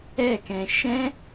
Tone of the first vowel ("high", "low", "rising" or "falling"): falling